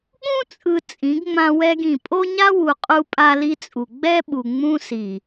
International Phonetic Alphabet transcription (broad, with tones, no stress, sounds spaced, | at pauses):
ɠ ũ˦ t͡sʼ ɯ˨ t͡sʼ ĩ˨˦ ɡ ŋ͡m ã˦ w ɛ˦ ɡ ĩ˨ pʼ o˦ ɲ a˦ w u˨ qʼ u˦ pʼ a˦ l i˦ t͡sʼ u˨ ɡ͡b ɛ˦ ɓ u˨ ŋ͡m ũ˦ s i˨